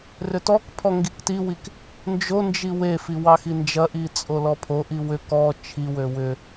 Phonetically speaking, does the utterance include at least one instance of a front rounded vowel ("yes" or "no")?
yes